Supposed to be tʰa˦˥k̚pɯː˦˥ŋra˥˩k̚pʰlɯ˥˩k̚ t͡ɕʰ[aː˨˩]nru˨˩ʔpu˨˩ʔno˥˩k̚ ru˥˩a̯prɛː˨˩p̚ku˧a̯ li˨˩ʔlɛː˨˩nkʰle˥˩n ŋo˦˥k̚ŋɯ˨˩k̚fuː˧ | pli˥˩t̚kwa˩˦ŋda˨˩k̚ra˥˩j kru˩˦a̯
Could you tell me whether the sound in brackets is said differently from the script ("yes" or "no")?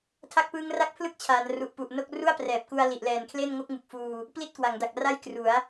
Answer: yes